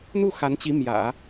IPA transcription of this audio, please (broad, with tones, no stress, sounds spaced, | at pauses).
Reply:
n̪ u˥˩ x a˧˥ n t͡ɕ i˧˥ m j ä̰˨˩˦